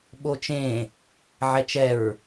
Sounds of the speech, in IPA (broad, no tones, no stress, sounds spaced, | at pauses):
ɓ o t͡ʃ ẽ | ʕ ɛ t͡ʃ ɛ ɹ